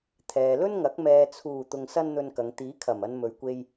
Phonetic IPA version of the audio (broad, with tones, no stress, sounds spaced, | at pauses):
t̪ʰ ɛː˨ l ɵ˥ n ŋ ɐ˨˥ k̚ m ɛː˨ t͡sʰ uː˨˩ t̪ ʊ˧ ŋ s ɐ˥ n n̪ ɵ˧ n k ɐ˨˧ ŋ t̪ iː˨˥ kʰ ɐ˨˩ m ɐ˧ n m ɵ˨ ɥ kʷ e˧ j